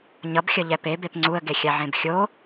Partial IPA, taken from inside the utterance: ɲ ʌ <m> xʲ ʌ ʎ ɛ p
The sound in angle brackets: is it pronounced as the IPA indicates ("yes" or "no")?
no